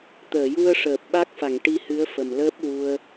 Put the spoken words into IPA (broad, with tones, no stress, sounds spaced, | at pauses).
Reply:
t̪ əː˨˩˨ j u˧ ə̯ ʂ əː˨˩ p̚ ɓ a˦˥ k̚ f a˨˩˨ ŋ ʈ i˧ h ɨ˧˥ ə̯ f ə˨˩ m l əː˦˥ p̚ w u˧ ə̯